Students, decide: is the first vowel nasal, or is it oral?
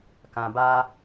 nasal